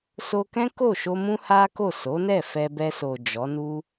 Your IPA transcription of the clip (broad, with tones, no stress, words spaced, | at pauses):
so˧kɛ̃˦ ko˦˨ʃo˧ mũ˦ha˦ko˦˨ so˨˦nɛ˦˨ fɛ˧bɛ˧so˨ d͡ʒɔ˨˦nu˦